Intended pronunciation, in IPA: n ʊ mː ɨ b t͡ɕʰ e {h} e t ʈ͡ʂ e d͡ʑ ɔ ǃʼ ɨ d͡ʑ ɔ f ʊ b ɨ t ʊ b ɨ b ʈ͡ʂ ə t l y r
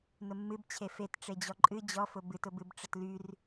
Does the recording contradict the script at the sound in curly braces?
yes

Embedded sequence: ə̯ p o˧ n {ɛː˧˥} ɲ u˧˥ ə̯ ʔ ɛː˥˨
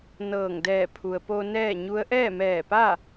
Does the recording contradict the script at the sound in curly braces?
yes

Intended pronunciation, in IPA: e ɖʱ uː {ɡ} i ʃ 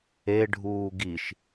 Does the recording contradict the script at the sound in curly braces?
no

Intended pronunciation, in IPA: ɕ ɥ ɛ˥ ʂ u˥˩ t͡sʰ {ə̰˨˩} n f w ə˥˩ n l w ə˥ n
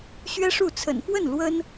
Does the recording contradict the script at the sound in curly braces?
no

